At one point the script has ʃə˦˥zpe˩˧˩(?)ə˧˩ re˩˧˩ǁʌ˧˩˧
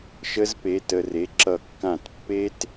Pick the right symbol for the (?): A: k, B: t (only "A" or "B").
B